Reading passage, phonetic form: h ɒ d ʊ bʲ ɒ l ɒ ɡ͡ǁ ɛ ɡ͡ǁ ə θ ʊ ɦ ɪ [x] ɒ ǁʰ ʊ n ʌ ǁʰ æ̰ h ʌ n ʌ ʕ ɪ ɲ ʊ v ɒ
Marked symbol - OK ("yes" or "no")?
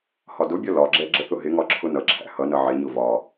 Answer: no